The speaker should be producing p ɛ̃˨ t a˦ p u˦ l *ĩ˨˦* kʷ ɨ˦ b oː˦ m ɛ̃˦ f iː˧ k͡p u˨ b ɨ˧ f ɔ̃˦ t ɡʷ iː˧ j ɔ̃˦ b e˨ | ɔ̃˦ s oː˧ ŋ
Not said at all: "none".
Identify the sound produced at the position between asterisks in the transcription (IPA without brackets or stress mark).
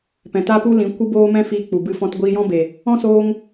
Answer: ĩ˨˦